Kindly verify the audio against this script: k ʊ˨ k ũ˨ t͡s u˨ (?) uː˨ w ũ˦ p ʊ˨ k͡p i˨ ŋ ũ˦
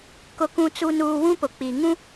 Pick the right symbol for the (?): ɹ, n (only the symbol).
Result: n